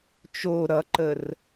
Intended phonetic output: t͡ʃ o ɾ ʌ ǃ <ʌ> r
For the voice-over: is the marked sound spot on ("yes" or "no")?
no